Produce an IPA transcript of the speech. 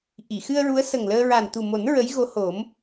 ʔ i˨˩˨ x ɨ˧ ə̯ ɹ u˧˥ ə̯ s ə˨˩ ŋ l əː˧ ɹ a˨˩ n t̪ u˨˩ m o˨˩˦ n ɹ ə˧˥ j ɣ o˧˥ h o˨˩˦ m

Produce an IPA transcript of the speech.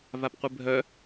v a p qʷ ɨ bʱ œ

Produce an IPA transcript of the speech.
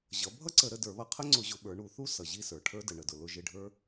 ʑ ʌ˩˧ bʱ ʌ˥ ǀ ə˧˩˧ ɾ ə˦˨ d ə˞˧˩˧ β ʌ˧˩˧ qʰ ə˥ ŋ͡ǀ ʊ˧˩˧ ʑ ʊ˩˧ ɓ ə˞˩˧ ɳ u˩˧ θ u˥ s ʌ˩ ʑ i˦˨ s ə˞˩ ʈʰ ə˞˥ d ə˩ ɳ ə˩ d ʊ˩ l ʊ˦˨ ʒ ɪ˦˨ ɖʱ ə˞˥

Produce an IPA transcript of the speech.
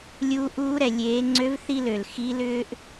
lʲ uː˧ ʔ uː˧˥ ɾ ɛ˩ lʲ eː˩˧ ŋ͡ǀ ø˧˥ v θ i˥ l ø˩ l x i˧˥ l ʏː˥ ʔ

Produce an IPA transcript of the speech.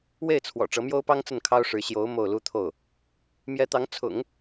w e˥˩ ɪ̯ t͡sʰ w ɔ̰˨˩ ʈ͡ʂ ɤ˧˥ m j o˥ ʊ̯ p ɑ˥ ŋ t͡s ə˥˩ n kʰ ɑ˥ ʊ̯ ʂ ɻ̩˧˥ ɕ j o˧˥ ʊ̯ m o˥˩ ʊ̯ l u˥ t̪ʰ o˥˩ ʊ̯ | m j ɛ˧˥ t̪ ɑ˧˥ ŋ t͡sʰ ʊ̰˨˩˦ ŋ

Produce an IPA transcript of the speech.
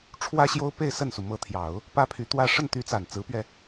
ʈ͡ʂʰ w ä˥ ɕ j o˥ ʊ̯ p e˥˧ ɪ̯ s ə˥˩ n s u˩ m ɤ˧˥ t̪ʰ j ɑ˨˩˦ ʊ̯ | p ä˥ pʰ y˧˥ t̪ w ä˥˧ ʂ ə˥˩ n t̪ y˧˥ t͡s a˨˩ n t͡s ɹ̩˧˥ p ɥ ɛ˧

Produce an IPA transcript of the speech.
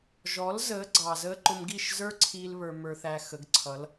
ʒ ɔ˨˦ l z əː˨˦ ɡ͡ǀ ɑ˨ z əː˧ ǃ ʊ˧ m ɡ i˦˨ ʃ z ə˞˦ ǀʰ iː˦ l β ə˞˧ m ə˞˧ θ æ˧ x ə˨˦ ɡ ǀʰ ʌ˨˦ l

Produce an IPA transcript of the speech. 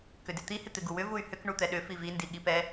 k ʏ d ɪ t̪ i h ɪ t̪ ɪ ɡ u w ʏ v u y̯ h ʏ k ɳ u t̪ ɛ ɗ ʏ f i v i n d i ɠ i p ɛ

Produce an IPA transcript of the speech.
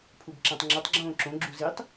pʰ u b ǁ æ̃ tˤ ŋ͡ǁ o tˤ ɡ͡ǁ õː ǁ õ ɡ͡ǁ u z i tˤ

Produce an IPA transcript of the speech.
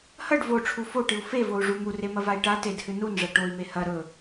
h ɐ ɖ v o ʈ͡ʂʰ u f o ʈ ɨ u̯ f e v o u̯ ʐ u m u r e m ɐ v a i̯ ʈ a t e d h ɨ n u n ʐ ɐ ʈ o i̯ m e h ɐ ɾ ɵ

